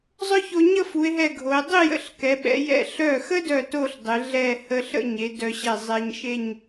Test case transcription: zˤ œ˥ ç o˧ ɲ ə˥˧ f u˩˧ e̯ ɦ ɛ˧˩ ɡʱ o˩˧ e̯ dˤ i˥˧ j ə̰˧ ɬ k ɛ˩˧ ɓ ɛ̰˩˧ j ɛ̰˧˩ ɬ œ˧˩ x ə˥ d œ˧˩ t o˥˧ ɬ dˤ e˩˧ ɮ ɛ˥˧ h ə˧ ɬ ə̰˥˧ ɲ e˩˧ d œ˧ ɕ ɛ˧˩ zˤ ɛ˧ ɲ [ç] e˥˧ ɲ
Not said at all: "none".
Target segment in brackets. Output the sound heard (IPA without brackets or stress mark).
ʃ